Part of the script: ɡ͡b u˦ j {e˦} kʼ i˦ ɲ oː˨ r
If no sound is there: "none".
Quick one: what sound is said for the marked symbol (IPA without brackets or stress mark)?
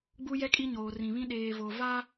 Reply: ɛ˦